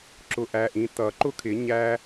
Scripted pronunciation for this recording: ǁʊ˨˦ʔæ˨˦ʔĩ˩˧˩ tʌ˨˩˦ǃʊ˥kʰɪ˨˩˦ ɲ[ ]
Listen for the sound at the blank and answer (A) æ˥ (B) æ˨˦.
A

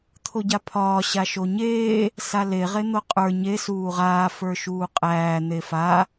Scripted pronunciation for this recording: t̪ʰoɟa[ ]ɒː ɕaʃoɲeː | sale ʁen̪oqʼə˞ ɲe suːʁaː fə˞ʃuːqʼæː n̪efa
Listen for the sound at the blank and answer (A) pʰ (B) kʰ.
A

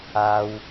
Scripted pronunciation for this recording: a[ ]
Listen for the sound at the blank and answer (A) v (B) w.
B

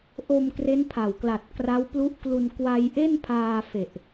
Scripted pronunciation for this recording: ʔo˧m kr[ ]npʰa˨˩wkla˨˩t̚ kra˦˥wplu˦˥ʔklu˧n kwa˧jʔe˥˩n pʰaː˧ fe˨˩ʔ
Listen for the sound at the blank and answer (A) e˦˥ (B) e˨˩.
A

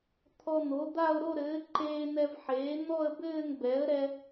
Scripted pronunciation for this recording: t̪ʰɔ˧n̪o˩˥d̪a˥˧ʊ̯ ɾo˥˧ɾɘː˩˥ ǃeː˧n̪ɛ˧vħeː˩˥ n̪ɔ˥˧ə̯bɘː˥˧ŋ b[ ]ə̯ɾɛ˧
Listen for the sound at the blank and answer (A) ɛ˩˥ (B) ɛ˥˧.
A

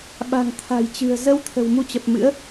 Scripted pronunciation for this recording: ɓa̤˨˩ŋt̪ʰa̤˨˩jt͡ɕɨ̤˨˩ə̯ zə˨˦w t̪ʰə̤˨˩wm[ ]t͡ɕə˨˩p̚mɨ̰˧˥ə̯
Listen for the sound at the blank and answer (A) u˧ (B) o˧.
A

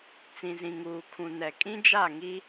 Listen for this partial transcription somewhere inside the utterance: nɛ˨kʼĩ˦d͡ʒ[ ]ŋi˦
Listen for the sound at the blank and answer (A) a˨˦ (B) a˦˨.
B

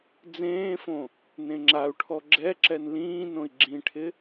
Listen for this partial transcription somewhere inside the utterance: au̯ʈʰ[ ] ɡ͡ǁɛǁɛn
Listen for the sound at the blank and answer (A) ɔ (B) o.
A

